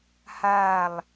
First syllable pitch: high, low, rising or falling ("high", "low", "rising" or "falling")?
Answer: falling